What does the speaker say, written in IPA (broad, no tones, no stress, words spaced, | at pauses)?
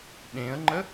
ɗẽə̯ŋ͡ǃə